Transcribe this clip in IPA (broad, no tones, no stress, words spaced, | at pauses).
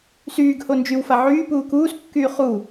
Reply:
syːɡ hond͡ʒywfa ʕyː puːkuːskːyː χuː